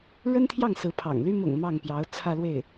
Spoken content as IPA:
ɻə˥nt̪ʰjɑ˥˩ŋ sɹ̩˧˥pʰɑ̰˨˩ŋly˥ mʊ̰˨˩ŋ mɑ˥˩ŋpjɑ˧˥ʊ̯ t͡sʰä˥˧lwe˥˩ɪ̯

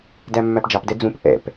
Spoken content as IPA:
dæmːæpd͡ʒɑpdɛ d͡zũp ʔɛ̰p

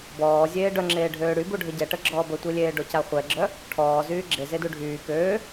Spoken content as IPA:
bɔːzʲeː ɖœŋ͡ǁeː ɖʱøːɽybu ɖʱəɟɛʈə ɡ͡ǁɔːbətʷilʲeː ɖocaχʷɛɡ͡ǁœ | ʈʰɔː zyːɡ͡ǁezedu ɖʱyː køː

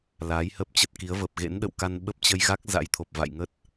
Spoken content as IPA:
laː˨˦jhə˦˥p̚t͡ɕə˦˥t̚ki˨˦ə̯ və˨˩p̚ɣḛ˧˥nɗə̰˧˨wka˧n ɓə˦˥p̚t͡ɕə˧jɣa˦˥k̚ za̰˧˥jt̪ʰo˨˩p̚ va̰˧˨jŋə˦˥t̚

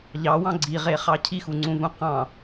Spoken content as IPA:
ʎɑwɑ̃ ɡ͡ǀiʁeχɑ cʰixuŋ͡ǀũvũ qɑ̃

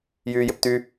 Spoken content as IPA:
jyːjɪpt̪y

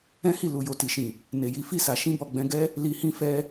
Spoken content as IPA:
ɛ̃˦hi˦˨ lu˨jo˨ ti˨ʃĩ˨ | ne˨ji˨˦fi˦˨sa˨ ʃĩ˧bɔ˨ɡ͡bɛ̃˧ ɡɛ˦ | li˨hĩ˧fɛ˧

